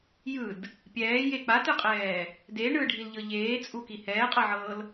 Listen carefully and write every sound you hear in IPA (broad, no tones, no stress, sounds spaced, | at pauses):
j ɯ d | pʲ ɛː j e k͡p a t ɯ qʼ ɛː | d e ɳ ɯ ɖʱ i l ʎ ɤ ʎ eː t͡sʼ u k i h ɛː qʼ ɤ ʕ ɤː l